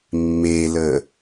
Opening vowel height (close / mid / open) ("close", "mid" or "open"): mid